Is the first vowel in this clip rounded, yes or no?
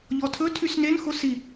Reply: yes